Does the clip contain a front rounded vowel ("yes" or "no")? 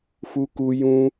no